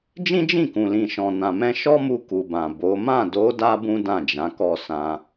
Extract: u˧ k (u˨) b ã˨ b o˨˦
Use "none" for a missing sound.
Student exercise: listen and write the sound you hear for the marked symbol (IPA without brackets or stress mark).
u˨